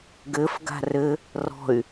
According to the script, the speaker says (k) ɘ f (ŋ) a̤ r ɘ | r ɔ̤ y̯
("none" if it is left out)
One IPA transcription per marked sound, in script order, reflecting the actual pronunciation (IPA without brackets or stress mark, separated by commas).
ɡ, ɡ